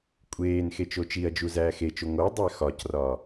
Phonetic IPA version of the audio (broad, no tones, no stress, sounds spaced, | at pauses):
kʷʼ eː n x e t͡ʃ o t͡ʃ i ɐ̯ d͡ʒ u z æː x e t͡ʃ o ŋ o dˤ æ x ɒ c r ɒ